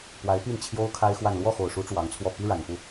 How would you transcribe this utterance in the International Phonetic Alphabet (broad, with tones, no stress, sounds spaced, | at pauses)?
p w a˧˥ ɪ̯ p i˥˩ n t͡ɕʰ j o˥ ʊ̯ kʰ a˥ ɪ̯ x w a˥˧ n l w ɔ˥˩ x o˨˩ ʊ̯ ʂ u˧˥ ʈ͡ʂ w ɑ˧˥ ŋ t͡sʰ w ɔ˥˩ p i˥ ɻ a˨˩ n p u˥˩